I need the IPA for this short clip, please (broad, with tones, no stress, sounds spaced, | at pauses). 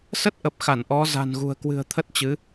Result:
s ə˦˥ t̚ ʔ ə˨˩ p̚ x a˧˩ n ʔ ɔ˨˦ z a̤˨˩ n ɣ ṳ˨˩ ə̯ k w ɨ̤˨˩ ə̯ t̪ʰ ə˦˥ t̚ t͡ɕ ɨ˨˦